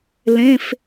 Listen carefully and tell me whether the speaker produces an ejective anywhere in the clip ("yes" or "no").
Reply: no